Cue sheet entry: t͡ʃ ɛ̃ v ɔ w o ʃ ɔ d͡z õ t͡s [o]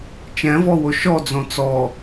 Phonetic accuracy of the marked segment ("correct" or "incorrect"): incorrect